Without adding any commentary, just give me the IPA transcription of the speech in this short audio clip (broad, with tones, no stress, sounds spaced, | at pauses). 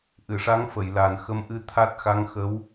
ʔ ɨ˨˩˨ ʂ a˧˥ ŋ f ə˨˩˨ j l a˨˩ n x ə˧˥ m ʔ ɨ˧ t̪ʰ a˦˥ t̚ x a˧˥ ŋ x ə˧˥ w